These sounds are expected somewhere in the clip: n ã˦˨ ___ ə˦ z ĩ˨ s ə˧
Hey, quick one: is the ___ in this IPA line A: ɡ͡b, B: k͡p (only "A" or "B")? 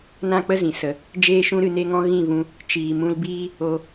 B